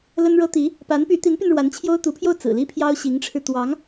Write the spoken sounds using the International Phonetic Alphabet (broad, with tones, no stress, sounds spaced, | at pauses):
l ə˥ n ɻ ɤ˥ t̪ i˧˥ | p a˧˥ n p y˧˥ t̪ i˧˥ n p y˧ n ɻ w a˧˥ n t͡ɕʰ j o˥ ʊ̯ t̪ u˧˥ pʰ j o˥˩ ʊ̯ t͡s ɹ̩˨˩ l i˥ pʰ j ɑ˥ ʊ̯ ɕ i˧˥ ŋ ʈ͡ʂʰ ɻ̩˧ t̪ w ɑ˧˥ ŋ